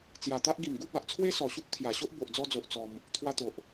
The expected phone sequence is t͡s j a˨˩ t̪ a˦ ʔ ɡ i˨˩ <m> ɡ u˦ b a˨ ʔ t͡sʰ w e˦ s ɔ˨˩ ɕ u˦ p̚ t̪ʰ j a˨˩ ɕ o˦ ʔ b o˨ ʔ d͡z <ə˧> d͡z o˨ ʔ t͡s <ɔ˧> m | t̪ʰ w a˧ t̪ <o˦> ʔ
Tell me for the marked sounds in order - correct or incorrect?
correct, incorrect, correct, incorrect

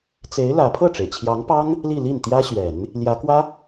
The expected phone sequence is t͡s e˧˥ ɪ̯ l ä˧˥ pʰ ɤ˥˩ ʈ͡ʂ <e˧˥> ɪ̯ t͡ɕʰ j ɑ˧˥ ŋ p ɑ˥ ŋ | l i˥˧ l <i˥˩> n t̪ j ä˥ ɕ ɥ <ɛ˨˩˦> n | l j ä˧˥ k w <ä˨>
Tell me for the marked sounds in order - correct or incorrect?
incorrect, correct, correct, incorrect

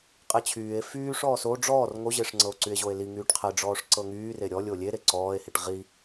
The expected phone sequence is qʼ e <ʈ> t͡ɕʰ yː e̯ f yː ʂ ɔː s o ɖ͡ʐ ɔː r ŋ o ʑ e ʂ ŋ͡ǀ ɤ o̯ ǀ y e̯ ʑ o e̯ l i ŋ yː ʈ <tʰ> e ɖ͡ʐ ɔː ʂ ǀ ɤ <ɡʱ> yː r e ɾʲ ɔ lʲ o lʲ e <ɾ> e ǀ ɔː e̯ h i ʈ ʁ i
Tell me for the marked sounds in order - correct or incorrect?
incorrect, incorrect, incorrect, correct

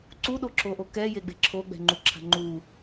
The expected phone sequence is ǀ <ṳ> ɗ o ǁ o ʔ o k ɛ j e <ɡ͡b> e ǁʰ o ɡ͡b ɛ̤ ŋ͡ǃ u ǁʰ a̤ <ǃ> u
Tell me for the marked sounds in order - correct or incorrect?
incorrect, correct, incorrect

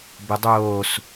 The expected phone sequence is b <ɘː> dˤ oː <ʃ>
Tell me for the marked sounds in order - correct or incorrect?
incorrect, incorrect

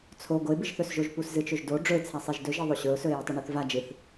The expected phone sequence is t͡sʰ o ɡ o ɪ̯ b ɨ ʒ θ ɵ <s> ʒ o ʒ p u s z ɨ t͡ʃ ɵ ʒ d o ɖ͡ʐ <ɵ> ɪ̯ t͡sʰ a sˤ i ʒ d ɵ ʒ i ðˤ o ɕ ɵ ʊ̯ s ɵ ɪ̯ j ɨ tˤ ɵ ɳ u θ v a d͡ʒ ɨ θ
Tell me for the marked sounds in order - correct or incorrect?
correct, correct

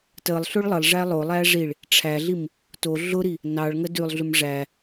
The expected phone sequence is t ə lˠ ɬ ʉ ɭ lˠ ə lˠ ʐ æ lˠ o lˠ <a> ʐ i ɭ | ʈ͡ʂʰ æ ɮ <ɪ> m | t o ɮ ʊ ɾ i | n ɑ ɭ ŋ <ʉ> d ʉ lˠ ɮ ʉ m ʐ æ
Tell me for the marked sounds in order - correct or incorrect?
incorrect, incorrect, incorrect

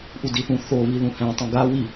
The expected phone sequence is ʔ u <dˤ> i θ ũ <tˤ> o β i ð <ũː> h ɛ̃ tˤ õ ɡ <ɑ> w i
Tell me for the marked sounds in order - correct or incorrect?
incorrect, incorrect, incorrect, incorrect

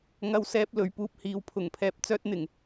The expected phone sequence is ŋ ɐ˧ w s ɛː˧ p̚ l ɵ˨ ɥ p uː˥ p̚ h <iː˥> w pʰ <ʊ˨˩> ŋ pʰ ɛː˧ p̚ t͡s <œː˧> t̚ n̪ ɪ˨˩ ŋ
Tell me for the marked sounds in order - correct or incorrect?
incorrect, correct, incorrect

